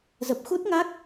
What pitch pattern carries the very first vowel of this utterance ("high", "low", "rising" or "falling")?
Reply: low